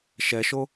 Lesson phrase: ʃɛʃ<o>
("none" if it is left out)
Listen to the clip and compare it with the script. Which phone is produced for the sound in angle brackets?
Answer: o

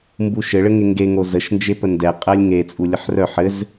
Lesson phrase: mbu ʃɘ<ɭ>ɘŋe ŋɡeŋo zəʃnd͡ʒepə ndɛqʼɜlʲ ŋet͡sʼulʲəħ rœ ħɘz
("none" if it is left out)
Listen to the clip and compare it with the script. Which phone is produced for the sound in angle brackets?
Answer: ɭ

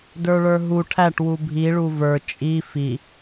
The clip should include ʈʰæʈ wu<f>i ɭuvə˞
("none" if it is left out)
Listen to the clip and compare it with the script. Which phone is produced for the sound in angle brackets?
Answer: bʱ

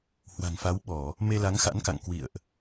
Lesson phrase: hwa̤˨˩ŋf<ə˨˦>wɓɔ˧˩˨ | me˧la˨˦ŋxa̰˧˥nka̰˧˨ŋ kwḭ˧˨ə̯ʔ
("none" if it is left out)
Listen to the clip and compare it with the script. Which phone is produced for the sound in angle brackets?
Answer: a˨˦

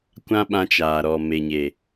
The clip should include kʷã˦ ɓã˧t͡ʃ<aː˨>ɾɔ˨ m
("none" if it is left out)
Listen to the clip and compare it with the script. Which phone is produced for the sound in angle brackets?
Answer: aː˨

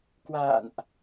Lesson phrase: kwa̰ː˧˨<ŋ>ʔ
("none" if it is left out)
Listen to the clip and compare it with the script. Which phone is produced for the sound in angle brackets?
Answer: n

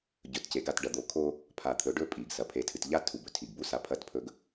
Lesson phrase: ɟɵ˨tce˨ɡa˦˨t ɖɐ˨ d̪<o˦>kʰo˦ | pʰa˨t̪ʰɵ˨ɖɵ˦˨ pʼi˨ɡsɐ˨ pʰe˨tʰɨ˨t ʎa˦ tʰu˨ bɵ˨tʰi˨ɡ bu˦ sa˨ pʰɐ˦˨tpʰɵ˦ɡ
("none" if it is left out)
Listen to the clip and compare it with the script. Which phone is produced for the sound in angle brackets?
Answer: o˨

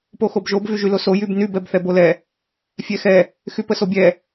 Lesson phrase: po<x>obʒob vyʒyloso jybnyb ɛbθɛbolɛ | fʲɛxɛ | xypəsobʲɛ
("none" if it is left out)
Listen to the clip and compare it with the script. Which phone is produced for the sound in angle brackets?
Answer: x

